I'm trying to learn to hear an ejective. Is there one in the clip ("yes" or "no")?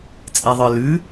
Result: yes